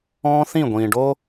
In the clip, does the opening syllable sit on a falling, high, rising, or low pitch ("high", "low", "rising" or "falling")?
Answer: high